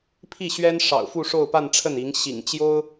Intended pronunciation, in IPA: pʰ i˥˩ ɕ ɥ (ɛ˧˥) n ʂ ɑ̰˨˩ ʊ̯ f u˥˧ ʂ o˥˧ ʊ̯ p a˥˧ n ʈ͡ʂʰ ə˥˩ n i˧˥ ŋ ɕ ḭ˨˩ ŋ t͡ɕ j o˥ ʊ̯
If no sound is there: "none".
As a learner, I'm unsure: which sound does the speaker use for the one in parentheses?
ɛ˥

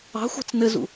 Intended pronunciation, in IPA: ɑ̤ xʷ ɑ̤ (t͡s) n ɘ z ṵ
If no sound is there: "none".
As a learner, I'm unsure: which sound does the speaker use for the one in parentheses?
t͡s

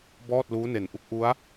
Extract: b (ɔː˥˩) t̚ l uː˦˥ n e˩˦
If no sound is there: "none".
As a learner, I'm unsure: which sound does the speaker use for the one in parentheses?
ɔː˥˩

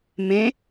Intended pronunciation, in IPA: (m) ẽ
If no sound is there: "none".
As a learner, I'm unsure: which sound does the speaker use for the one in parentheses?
m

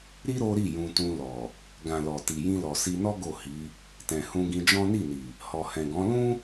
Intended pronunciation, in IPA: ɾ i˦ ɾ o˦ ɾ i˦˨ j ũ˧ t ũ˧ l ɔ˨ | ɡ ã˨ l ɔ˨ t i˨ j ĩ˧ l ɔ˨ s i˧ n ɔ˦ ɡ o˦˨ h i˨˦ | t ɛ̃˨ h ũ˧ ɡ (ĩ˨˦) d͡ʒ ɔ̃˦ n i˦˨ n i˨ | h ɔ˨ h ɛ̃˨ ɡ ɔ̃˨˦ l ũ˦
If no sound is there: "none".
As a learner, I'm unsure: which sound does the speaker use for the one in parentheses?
ĩ˧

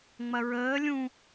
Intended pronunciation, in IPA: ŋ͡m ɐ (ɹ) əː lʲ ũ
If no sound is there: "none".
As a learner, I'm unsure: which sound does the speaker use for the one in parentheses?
ɹ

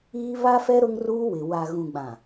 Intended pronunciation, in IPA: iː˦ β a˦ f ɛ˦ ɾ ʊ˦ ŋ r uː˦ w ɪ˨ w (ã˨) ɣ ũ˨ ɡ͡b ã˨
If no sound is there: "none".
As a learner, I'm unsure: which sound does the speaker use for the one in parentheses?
a˨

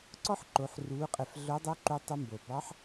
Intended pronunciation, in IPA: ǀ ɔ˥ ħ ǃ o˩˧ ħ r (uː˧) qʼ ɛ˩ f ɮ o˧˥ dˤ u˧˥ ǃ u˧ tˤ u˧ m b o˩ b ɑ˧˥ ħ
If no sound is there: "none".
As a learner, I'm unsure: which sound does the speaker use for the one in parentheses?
uː˩˧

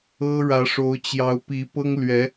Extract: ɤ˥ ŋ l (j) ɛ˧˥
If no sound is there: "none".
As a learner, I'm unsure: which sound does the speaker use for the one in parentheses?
ɥ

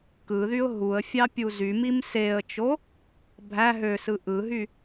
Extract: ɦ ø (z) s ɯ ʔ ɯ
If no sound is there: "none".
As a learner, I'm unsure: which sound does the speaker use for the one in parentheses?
none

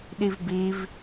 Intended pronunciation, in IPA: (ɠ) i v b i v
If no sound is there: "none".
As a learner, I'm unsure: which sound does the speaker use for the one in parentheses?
ɗ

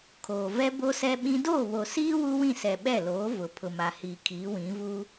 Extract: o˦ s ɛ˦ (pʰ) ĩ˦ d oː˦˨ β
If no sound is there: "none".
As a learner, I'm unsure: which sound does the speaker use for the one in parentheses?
ɓ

